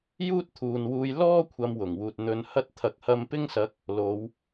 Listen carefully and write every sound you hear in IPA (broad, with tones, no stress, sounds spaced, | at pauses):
j uː˥ t̚ t̪ʰ uː˨ n w uː˧ j l ɔː˥ kʷʰ ɐ˨˧ m w ʊ˨˩ ŋ w uː˨ t̚ n̪ ɵ˧ n h ɐ˥ t̚ t̪ʰ ɐ˨ k̚ h ɐ˧ m p ɪ˥ ŋ s ɐ˨˥ k̚ | l o˨˧ w